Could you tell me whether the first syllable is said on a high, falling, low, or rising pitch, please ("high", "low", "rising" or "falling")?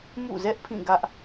falling